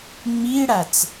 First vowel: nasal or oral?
oral